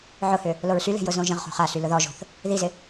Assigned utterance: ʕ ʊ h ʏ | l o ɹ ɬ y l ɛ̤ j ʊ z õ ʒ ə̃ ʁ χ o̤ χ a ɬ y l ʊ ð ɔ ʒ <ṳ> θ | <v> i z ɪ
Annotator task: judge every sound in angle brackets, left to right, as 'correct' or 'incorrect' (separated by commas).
incorrect, incorrect